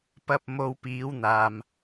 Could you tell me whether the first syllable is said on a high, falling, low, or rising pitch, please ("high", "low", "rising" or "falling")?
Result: low